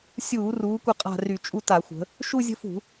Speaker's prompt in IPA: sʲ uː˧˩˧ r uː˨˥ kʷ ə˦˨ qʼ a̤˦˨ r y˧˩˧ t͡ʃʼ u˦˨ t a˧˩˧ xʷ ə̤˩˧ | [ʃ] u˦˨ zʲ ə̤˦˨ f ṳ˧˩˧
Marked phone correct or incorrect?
correct